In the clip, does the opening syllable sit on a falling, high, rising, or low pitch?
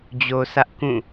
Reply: low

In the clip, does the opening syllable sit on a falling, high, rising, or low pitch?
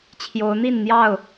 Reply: rising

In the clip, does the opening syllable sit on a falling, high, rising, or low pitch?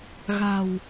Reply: low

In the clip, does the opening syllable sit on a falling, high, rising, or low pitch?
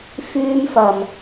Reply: high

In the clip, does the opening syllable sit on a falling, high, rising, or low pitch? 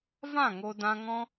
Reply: falling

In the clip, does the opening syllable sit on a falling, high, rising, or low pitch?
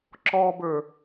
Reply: high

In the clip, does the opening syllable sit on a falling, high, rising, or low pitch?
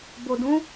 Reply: low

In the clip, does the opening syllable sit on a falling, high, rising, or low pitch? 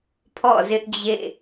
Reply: falling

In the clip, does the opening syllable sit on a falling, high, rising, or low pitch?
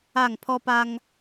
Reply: falling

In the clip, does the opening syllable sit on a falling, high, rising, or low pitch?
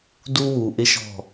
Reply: high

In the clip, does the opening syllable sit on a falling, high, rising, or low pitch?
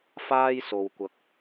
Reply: high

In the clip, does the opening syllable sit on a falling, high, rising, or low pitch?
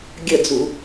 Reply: falling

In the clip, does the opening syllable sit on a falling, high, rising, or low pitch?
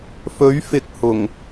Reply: rising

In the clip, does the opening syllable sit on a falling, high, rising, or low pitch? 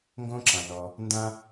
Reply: high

